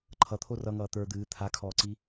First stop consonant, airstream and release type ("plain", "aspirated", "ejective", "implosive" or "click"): click